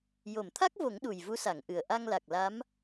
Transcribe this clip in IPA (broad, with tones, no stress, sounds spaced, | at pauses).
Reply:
j o˨˩˨ m t̪ʰ a˦˥ k̚ v o˨˩˦ ŋ ɗ u˨˩ j v u˧˥ s a˨˩˨ ŋ ʔ ɨ˨˩ ə̯ ʔ a˧ ŋ l a˨˩ k̚ l a˧˥ m